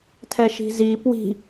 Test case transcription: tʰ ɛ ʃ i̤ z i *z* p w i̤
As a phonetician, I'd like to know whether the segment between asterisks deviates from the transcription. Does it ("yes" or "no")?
yes